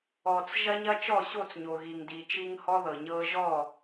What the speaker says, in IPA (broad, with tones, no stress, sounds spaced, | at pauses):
ɔ˨ t͡s ʒ ɐ˦ ɲ ɐ˦ t͡ʃ ɔ˦˨ ɕ o˦˨ t͡s ɲ o˨ ɣ i˨ ŋ d i˨ t͡ʃ i˦ ŋ h ɔ˦ ð ɤ˨ ɲ ɤ˦ ʒ ɔ˦˨